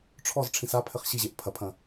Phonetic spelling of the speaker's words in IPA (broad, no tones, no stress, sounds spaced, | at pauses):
ʈ͡ʂʰ ɔ z ʈ͡ʂʰ ĩ s a pʰ ɘ χ ɕ i ʑ e ʔ pʰ ɐ pʰ ɐ̃